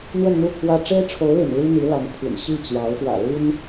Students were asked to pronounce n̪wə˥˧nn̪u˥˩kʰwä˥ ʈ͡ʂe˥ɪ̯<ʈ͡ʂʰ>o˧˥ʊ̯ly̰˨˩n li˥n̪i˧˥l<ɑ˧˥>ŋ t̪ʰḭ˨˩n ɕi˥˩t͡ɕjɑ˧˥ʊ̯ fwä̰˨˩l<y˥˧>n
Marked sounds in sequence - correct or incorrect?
correct, correct, incorrect: y˥

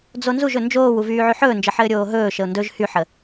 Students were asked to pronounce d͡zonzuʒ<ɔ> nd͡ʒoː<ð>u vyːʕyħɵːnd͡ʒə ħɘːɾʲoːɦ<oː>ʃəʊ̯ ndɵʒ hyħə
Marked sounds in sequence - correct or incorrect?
incorrect: ɵ, incorrect: w, incorrect: ɵː

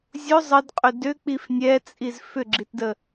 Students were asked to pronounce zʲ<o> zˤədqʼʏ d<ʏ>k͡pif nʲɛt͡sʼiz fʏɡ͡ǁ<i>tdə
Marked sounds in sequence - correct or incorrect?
correct, correct, correct

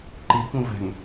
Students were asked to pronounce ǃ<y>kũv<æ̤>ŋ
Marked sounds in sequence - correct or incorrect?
incorrect: i, correct

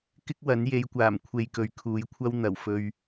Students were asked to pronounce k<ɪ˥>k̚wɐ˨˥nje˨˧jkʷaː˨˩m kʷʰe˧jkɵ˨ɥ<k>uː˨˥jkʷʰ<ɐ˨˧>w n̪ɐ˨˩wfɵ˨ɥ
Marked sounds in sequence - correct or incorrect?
correct, incorrect: kʰ, incorrect: ɐ˥

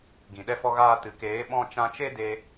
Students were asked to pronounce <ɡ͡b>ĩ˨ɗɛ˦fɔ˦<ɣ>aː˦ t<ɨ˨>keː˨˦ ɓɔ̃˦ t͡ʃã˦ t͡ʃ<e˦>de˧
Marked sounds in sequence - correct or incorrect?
incorrect: ɡ, correct, correct, correct

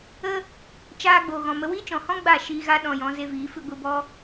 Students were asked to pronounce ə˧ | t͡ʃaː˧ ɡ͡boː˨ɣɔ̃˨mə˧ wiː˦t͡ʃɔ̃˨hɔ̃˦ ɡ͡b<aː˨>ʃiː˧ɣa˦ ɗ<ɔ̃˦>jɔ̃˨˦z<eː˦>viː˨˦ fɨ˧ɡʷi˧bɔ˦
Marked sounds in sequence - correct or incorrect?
incorrect: aː˦˨, incorrect: ɔ̃˧, incorrect: e˦

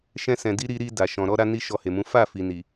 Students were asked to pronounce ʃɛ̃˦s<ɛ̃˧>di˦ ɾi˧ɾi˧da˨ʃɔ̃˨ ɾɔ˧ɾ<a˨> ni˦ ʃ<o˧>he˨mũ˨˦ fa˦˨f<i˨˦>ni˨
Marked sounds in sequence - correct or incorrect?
correct, incorrect: a˧, incorrect: ɔ˧, incorrect: i˨

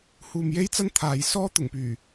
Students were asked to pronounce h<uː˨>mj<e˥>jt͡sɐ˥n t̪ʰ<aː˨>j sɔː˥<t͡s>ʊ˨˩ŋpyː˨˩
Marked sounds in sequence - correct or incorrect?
correct, correct, correct, incorrect: t̪

